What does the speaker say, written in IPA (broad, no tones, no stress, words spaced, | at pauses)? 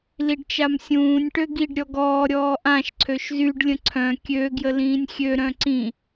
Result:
liɖt͡ʃamsʲũːnʲ ʈøɡiɖ ɾʲɔɡɔː ɾʲɔːʔãʃ ǀʰøʃzyɖ lʲə̃ǀʰœ̃ kʲø ɡjəlĩːnʲxʲø ɾœ̃ǀĩ